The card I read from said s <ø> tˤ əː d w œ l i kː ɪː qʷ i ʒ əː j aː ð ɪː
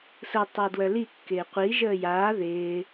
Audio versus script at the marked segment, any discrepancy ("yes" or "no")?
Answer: yes